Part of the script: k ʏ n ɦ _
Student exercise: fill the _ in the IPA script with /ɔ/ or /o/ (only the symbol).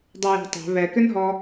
ɔ